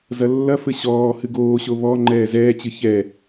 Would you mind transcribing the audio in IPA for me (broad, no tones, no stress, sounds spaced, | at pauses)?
z ɐ lː ɐ f ɘ ɕ ɔː h ɨ ɡ oː ɕ o β ɔ ŋ͡ǃ ɛː z ɛː t͡ɕ ɨ ç ɛ